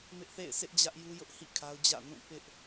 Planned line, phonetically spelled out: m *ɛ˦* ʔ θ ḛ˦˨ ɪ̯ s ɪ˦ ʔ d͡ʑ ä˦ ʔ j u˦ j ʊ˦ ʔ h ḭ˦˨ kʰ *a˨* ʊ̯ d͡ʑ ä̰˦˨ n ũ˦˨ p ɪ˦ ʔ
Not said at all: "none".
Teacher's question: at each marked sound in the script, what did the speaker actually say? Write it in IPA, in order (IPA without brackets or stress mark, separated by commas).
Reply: ɪ˦, a˦